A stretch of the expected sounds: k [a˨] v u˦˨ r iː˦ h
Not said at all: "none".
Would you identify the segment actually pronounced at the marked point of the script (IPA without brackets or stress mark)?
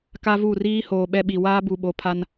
a˦